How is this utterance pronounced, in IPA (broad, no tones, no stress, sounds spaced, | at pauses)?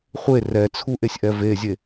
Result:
χʷ e r ɛ t͡sʰ u ʔ e sʲ ʔ ɛ v e zʲ e